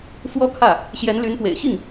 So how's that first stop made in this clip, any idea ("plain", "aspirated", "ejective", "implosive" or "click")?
aspirated